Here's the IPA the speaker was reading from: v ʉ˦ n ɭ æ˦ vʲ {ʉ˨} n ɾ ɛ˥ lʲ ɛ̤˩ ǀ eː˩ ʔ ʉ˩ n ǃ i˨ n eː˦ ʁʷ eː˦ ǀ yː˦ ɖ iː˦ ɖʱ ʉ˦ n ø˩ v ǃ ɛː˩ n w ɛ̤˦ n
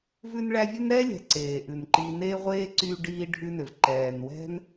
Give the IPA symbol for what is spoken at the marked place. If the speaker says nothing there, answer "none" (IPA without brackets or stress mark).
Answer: ʉ˥